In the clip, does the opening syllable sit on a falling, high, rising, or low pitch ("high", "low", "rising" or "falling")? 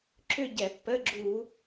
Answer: falling